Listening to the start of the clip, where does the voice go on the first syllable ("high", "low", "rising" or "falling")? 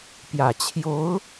low